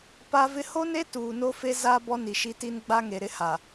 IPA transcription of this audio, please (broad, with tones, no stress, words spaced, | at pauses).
pa˦vɪ˦ ho˦ne˦ tuː˨no˦fe˦ za˦ bɔ˦ni˨ʃi˦ti˦n ɡ͡ba˦ŋe˨ ɾɪ˦ha˨